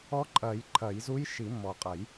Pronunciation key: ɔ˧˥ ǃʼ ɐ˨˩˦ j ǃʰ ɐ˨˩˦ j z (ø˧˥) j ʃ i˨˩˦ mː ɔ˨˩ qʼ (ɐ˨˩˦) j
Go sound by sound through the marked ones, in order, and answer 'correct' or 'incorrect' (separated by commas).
incorrect, correct